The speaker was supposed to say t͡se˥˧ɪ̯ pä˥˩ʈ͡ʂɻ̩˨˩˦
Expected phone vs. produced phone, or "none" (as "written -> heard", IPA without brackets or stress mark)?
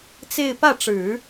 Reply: none